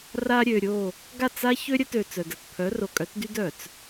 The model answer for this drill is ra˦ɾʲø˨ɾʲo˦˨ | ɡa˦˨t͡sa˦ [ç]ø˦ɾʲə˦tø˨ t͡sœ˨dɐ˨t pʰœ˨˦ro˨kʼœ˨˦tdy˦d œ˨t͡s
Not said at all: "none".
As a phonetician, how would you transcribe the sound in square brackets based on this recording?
ç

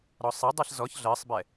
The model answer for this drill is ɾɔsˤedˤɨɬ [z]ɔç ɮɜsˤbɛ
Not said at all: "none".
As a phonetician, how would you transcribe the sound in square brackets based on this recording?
z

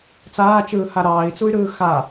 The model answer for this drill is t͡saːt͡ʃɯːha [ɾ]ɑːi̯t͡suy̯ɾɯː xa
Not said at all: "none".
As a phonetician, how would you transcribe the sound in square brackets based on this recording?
ɾ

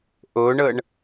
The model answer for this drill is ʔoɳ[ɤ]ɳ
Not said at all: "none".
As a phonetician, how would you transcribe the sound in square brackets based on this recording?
ɤ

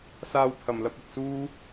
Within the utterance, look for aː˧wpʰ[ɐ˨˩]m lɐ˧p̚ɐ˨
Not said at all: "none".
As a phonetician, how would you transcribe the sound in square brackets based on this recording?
ɐ˨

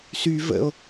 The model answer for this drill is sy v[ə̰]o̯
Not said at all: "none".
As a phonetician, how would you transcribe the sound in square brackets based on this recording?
ə̰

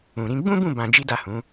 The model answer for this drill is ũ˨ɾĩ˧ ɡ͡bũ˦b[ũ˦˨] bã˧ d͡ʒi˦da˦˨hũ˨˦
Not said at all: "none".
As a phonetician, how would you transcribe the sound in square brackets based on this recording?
ũ˦˨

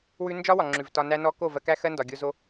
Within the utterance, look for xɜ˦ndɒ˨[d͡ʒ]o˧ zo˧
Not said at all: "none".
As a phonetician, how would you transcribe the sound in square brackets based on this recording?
ɡʲ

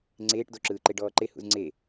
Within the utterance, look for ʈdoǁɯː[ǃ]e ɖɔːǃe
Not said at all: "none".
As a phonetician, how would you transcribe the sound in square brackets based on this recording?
ǃ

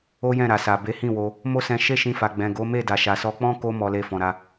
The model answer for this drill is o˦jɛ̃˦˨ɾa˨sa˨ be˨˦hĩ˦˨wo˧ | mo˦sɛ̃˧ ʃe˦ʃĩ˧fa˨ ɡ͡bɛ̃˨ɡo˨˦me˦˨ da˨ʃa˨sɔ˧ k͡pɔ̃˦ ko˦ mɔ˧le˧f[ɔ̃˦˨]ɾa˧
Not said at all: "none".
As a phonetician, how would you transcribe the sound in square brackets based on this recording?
ɔ̃˨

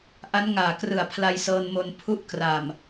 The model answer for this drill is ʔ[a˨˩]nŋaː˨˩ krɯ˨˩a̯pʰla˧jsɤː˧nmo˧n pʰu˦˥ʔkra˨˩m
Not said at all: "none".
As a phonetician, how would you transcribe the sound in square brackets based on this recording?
a˦˥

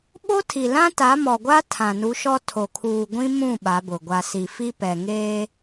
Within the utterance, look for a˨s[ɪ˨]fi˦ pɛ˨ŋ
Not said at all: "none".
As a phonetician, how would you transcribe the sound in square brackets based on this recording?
i˨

